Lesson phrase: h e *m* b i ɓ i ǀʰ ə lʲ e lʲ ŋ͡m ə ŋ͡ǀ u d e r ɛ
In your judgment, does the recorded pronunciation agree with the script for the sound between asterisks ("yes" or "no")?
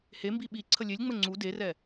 yes